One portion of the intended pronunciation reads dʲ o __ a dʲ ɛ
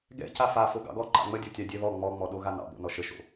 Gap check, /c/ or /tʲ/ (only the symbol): tʲ